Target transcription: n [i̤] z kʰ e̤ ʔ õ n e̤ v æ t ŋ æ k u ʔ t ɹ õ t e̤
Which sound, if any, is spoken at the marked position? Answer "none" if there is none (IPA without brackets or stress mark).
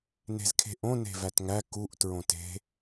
e̤